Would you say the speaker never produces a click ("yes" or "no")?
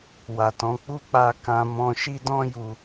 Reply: yes